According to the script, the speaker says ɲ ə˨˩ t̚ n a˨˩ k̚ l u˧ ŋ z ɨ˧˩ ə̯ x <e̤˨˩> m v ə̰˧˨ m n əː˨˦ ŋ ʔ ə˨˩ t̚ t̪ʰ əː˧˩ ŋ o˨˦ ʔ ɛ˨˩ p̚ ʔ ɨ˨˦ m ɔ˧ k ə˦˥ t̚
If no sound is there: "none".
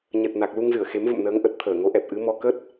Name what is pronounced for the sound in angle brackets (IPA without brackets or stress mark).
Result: e˨˦